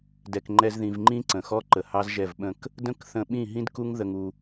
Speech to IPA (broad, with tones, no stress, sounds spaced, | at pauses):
d ɛ˨ k ŋ͡ǃ ɛ˧ z ð ĩ˨ v ŋ͡ǃ ĩ˦ ǀ ə̃˨ x ɔ˦ ǃ ə˨ h ɑ˦ z ʒ ɛ˦˨ v ɓ ə̃˦˨ k | d ə̃˦ k θ ə̃˧ ɓ ĩ˦˨ ɦ ĩ˦ d k u˦ ŋ ð ə˧ ŋ u˧